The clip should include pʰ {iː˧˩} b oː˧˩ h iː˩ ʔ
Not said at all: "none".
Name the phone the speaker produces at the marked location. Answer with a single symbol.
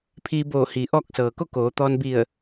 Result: iː˧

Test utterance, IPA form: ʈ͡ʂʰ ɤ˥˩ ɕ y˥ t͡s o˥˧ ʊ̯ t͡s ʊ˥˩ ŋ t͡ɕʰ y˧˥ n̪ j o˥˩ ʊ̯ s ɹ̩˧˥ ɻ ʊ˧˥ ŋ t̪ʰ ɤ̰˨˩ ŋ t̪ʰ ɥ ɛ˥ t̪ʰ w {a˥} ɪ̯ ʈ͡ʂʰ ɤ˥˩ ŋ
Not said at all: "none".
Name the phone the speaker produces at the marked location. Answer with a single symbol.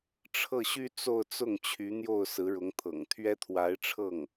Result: a˧˥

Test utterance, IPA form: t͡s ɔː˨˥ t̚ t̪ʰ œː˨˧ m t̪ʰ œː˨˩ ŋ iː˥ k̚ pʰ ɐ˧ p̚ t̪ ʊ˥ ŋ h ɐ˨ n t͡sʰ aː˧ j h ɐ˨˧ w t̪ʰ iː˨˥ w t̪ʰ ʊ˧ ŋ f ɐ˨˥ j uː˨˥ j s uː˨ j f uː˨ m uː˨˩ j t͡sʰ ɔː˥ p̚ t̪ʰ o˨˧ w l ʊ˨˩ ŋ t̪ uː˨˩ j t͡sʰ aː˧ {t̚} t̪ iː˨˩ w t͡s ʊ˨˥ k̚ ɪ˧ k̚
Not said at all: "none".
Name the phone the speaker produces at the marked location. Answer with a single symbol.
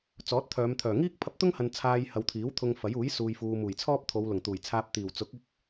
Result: p̚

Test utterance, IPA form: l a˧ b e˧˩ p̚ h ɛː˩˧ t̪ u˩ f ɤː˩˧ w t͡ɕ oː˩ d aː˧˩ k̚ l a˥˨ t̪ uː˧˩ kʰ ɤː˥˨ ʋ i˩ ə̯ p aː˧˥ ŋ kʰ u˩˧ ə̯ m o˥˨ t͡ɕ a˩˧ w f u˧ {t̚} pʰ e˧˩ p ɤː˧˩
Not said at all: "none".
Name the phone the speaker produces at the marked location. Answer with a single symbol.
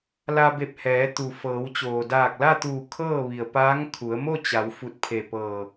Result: t̚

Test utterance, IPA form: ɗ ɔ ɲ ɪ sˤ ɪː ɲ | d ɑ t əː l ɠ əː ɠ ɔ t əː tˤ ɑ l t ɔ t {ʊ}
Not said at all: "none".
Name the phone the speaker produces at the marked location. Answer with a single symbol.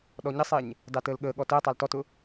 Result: ʊ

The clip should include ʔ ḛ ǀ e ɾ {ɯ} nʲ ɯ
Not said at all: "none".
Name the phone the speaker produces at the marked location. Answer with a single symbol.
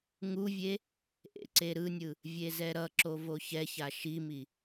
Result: ɯ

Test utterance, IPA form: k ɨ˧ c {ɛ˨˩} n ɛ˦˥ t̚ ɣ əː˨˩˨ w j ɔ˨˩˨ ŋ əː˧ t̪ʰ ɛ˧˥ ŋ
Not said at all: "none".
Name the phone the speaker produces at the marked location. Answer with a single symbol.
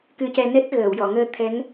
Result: ɛ˧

